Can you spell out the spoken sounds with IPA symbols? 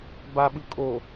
baɓɯ kʼo

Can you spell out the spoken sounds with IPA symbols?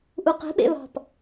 ʔuqe̤ɓḛ βɑ̤p

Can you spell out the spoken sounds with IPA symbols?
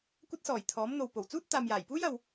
kʷɐ˧t̚sɔː˨˩j t̪ʰɔː˨˥mn̪o˨w po˨˩w t͡suː˥t̚ t̪aː˨mjaː˨˩jpuː˥j ɐ˨w

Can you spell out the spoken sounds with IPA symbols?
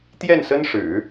t̪jɛ˥˩nsə˥nʂɻ̩˨˩˦

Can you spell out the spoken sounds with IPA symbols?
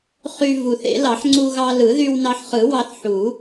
χy˧ vu˨˩θḛ˨˩˦lɑ˨˩˦ħ ŋ͡ǀu˧ɣɑ˧lɯ˨˩˦ ðy˧wnɑ˧ħχɯ˨˩˦ wɑ˧θ ħu˨˩˦

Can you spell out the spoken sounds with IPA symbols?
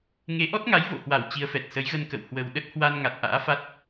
ŋe˨˦ʔɔ˦˥t̚ ŋa˨˦j vo̰˧˨hwa˧˩w t͡ɕi˨˦ə̯fɛ˨˩t̚ sə˨˦jɣə˧nkə̰˧˨w hwə˨˩w ɗə˦˥t̚hwa˧n ŋa˨˩t̚ʔa̰ː˧˥fa˦˥t̚

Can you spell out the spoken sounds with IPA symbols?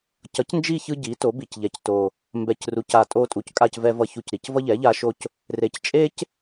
cʌ˩˥cnd͡ʒi˦˨ çɯ˦ɟi˩˥to˩˥bi˨˩c ʎɛ˩˥cto˨˩ | mbɛ˨˩cru˩˥ca˨˩ tʼo˦ tʼu˨˩ckʼa˦˨c vɛ˦vʌ˦˨ çu˦˨cɾi˨˩c vʌ˦ʎɛ˩˥ ʎa˦ʃo˦c | re˩˥c t͡ʃʼe˦c

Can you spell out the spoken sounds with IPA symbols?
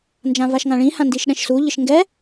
nd͡ʒãvaʃŋãɭĩ hãndiʃɗɛ̃ʃsu ʎɪʃŋɡɛ

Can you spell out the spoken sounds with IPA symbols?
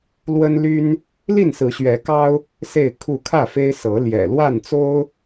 lwə˦nly˦n | li˥˨nsɹ̩˨˦ɕɥɛ˨˦kɑ˦ʊ̯ | se˥˨ɪ̯kʰu˥˨ kʰä˥˨fe˦ɪ̯ sɤ˨˦ ljɛ̰˨˩lwa˥˨nt͡so˦ʊ̯

